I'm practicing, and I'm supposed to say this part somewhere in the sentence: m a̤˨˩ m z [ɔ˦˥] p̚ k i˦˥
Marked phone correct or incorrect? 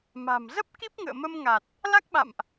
incorrect